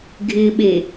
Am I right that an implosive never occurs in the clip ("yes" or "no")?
no